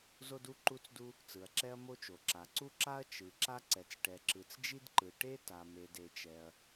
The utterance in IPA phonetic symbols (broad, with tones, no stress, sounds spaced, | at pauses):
z o˥ d u˥ ǃ u˥ t͡s d u˥ | t͡s ɯ˩ ɐ̯ ǁ ɛ˥ ɐ̯ m o˥ t͡ʃ o˩ ǁ a˩ ǀ u˥ ǁ a˥ ɐ̯ t͡ʃ ɯ˩ ǁ a˥ ǀ ɛ˩ t͡s ʈ ɛ˩ ǁ ɯ˩ t͡s d͡ʒ i˥ d ǃ ɯ˩ ʈ e˥ t a˩ m e˩ d e˩ t͡ʃ ɛ˩ ɐ̯